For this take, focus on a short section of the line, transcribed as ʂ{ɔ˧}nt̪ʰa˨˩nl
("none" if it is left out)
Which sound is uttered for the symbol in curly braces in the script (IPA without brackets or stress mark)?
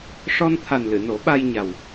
ɔ˧